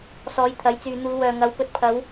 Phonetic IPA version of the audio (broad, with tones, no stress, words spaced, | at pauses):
sɔː˨˧jt̪ʰɐ˨˥jt͡syː˨ n̪uː˨˧wœː˨ŋɐ˨˥w pɵ˨t̚pʰɐ˨˧w